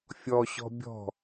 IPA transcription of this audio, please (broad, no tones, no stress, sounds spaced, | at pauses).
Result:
fʲ ɔ ɕ ɔ̤ bʲ ɔ̤